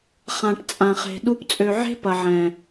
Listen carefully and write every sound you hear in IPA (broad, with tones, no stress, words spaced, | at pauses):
χã˨ʈ t͡sʼã˨χe̤˨ ɗu˧p t͡sʼø˨ʕe̤˦ pɐ˨ʕɛ̃˨